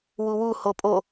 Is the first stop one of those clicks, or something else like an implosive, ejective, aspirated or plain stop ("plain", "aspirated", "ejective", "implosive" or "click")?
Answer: ejective